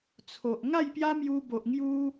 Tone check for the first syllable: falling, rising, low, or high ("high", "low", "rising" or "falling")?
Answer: low